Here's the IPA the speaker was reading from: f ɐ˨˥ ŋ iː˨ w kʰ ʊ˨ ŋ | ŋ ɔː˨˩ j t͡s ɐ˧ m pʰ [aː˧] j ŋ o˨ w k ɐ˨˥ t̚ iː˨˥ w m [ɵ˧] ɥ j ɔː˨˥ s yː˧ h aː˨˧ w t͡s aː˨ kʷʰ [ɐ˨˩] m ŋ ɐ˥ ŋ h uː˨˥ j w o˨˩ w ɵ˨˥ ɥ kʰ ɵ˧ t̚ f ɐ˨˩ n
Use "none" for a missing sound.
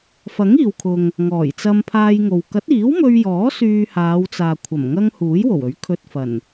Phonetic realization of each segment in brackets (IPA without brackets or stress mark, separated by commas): aː˧, ɵ˧, ɐ˨˩